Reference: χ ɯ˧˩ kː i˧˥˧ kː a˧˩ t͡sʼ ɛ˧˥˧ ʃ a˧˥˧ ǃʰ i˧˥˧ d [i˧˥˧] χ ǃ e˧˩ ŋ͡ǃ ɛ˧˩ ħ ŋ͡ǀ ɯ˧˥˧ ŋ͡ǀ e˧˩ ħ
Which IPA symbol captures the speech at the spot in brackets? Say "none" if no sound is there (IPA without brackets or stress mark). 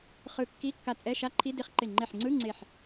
i˧˥˧